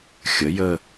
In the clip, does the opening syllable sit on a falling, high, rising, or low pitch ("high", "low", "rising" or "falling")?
rising